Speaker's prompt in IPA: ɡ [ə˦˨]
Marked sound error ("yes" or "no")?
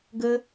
yes